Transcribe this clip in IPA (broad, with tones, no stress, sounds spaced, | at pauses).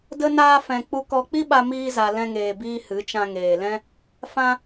d ə˦ n aː˦ f ɛ̃˧ k͡p u˧ k ɔ˧ k͡p i˦ ɓ a˧ m iː˦ z a˧ l ɛ̃˦ ŋ eː˧ b iː˦ h ɨ˨˦ t͡ʃ ã˧ ŋ eː˨ l ɛ̃˦ | f ã˦